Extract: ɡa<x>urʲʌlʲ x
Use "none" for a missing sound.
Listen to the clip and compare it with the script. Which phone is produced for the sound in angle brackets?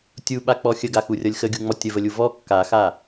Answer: x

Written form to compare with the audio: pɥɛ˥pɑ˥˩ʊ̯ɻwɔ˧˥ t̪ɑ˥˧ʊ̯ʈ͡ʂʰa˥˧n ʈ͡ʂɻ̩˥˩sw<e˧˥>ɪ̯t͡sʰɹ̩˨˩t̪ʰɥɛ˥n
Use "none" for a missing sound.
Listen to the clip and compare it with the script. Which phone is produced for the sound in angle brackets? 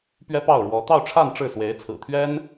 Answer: e˧˥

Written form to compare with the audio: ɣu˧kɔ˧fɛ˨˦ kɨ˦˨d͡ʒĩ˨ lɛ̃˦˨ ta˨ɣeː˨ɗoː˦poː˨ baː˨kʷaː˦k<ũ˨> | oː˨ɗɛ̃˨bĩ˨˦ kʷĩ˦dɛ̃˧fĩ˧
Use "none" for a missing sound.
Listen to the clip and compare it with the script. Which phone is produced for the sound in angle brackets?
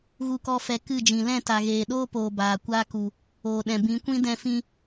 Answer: u˨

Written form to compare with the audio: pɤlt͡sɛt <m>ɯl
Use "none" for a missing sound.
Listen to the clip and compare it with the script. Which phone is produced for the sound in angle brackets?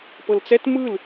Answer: m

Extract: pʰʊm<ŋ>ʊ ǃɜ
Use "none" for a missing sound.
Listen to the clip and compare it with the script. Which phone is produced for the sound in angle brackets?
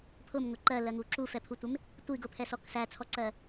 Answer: ŋ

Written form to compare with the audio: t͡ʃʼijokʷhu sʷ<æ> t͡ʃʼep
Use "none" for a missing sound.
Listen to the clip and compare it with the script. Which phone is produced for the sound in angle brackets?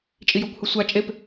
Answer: a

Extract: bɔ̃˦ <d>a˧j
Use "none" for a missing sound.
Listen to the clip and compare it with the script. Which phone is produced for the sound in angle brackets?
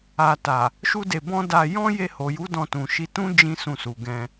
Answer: d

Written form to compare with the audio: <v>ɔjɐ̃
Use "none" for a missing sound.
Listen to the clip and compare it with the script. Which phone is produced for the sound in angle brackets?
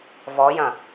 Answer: v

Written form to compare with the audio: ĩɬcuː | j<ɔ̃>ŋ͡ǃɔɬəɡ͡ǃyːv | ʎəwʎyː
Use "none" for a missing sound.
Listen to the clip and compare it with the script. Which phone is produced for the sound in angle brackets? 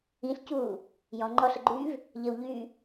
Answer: ɔ̃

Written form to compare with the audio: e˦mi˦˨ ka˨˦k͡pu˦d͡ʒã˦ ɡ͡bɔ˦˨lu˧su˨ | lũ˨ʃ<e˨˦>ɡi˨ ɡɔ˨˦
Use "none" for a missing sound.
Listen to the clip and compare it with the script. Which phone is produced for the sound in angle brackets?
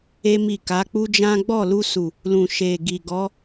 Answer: e˨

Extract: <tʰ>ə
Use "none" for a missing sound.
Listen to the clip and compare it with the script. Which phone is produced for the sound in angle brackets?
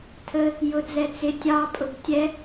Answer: tʰ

